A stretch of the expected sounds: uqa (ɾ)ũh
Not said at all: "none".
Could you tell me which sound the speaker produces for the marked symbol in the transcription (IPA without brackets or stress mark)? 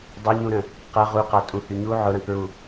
tʼ